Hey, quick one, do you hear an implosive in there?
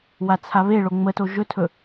no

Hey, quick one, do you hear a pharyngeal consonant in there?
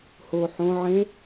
yes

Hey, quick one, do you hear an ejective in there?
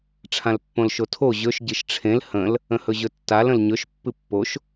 no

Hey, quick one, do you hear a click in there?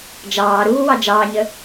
no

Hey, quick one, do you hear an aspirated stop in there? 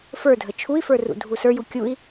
yes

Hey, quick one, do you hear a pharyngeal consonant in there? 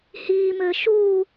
no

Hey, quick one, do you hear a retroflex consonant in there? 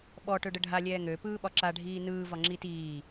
yes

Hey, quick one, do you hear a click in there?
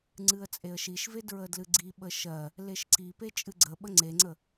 yes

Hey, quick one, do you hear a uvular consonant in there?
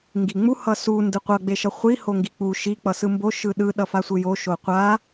yes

